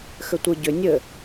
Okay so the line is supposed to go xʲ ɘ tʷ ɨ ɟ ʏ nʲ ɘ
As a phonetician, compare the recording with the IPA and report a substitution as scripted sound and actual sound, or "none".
xʲ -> x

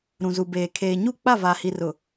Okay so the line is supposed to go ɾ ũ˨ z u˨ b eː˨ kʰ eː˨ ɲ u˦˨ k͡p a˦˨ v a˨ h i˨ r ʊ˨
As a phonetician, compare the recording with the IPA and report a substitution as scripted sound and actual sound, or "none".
none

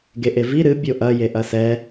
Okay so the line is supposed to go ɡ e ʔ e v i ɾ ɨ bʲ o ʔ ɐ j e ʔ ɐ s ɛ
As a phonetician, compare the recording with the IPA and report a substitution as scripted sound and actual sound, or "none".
none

